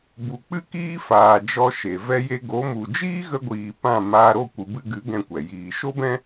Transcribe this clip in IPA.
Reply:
b u˨ k͡p ɨ˦ k iː˦ f aː˨ d͡ʒ ɔ˧ ʃ e˨ v ɛ˧ j e˧ ɡ o˨˦ m u˨ d͡ʒ iː˦ ɣ ə˧ ɡʷ iː˨ p ã˦˨ m aː˧ ɾ o˦˨ kʷ ɨ˨ b ɨ˧ ɡ ɨ˨˦ ɡ ɛ̃˦ kʷ ɛ˨ j iː˧ ʃ o˦ b ɛ̃˦

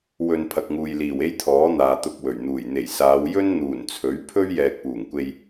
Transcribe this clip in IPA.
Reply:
w ɵ˨ n pʰ ɐ˨ k̚ ŋ uː˨ j l iː˨˩ w e˥ j t̪ʰ ɔː˨˥ n̪ aː˨ t̪ ʊ˧ k̚ w ɵ˨˩ ɥ n̪ uː˨˩ j n̪ e˨˩ j s aː˨˧ w j ɵ˥ n n̪ uː˨˩ n t͡sʰ ɵ˨˥ ɥ pʰ ɵ˥ ɥ j ɛː˨ k̚ p uː˨˩ ŋ kʷ e˧ j

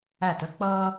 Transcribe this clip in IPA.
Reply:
æ˧˩ t ə˦ k͡p ʌː˦

